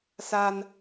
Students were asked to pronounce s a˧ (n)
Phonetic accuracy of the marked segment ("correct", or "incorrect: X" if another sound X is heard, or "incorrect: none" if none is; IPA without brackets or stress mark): correct